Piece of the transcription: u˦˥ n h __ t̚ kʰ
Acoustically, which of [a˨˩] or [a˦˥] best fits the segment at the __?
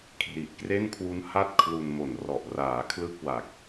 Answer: a˦˥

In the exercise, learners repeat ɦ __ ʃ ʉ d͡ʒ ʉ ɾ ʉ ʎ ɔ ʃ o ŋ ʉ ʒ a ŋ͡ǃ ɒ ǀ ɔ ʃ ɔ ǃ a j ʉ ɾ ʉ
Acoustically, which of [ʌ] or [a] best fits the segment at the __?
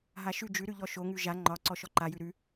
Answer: a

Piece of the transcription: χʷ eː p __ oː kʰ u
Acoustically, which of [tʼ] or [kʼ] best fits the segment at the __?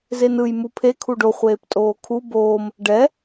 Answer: tʼ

